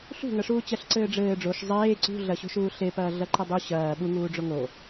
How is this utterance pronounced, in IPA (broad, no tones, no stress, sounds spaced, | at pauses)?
ɬ ṳ ŋ ɐ ʂ uː t͡ɕ ɐ ɬ ǀ ɘː ɖ͡ʐ ɘː ɖ͡ʐ o ʃ zˤ eː ǀ ṳ ɮ ɐ ɕ o̤ ʃ uː ɬ e p ɐː ɮ ɐ ǃ e dˤ u ɕ ɐː ɓ u ŋ uː ɖ͡ʐ o ŋ o